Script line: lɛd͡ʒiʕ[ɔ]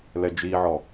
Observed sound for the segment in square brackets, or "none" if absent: ɔ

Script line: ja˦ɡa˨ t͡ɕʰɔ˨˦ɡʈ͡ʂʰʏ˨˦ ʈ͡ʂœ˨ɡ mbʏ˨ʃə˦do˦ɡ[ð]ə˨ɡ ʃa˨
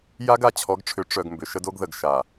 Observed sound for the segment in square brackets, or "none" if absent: ð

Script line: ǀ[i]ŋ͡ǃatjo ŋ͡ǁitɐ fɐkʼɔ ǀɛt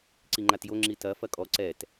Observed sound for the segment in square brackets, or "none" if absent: i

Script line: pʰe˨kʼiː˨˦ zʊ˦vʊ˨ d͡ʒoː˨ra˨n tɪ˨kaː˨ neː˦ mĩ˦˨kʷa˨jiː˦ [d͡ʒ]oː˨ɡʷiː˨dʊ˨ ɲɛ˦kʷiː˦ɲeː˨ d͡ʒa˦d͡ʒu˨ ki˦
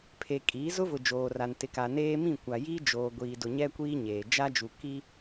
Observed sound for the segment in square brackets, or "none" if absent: d͡ʒ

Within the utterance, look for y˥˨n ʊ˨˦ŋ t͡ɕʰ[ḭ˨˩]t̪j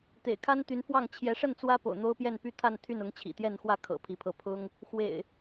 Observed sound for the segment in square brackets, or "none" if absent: ḭ˨˩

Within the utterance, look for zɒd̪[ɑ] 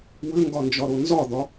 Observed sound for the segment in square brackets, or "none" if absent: ɒ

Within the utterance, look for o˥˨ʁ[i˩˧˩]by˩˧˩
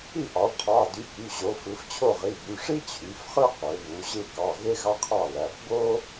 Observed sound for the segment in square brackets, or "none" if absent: i˩˧˩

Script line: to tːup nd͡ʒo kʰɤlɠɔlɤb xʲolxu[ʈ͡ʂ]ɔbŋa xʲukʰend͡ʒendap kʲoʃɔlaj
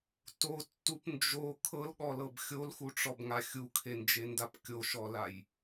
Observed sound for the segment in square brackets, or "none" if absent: ʈ͡ʂ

